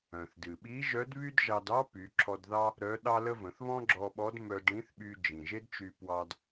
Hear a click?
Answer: yes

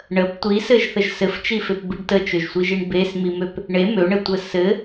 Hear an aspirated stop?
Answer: no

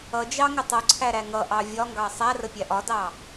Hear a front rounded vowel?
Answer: no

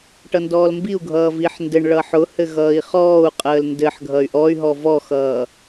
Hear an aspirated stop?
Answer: no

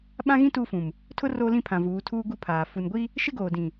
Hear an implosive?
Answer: yes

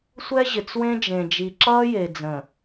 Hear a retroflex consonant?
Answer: no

